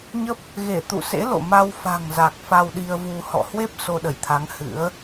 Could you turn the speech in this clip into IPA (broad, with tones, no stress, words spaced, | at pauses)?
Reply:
ɲə˦˥p̚ | ɣe˧˩t̪ṵ˧˨sḛ˧˥ lo̰˧˨ma˧w fa̤˨˩ŋza˨˩k̚ fa˧wɗi˧ə̯vu˧ hɔ̰˧˨hwe˦˥p̚ so˧ɗə˧˩jt̪ʰa˨˦ŋ hɨ̰˧˥ə̯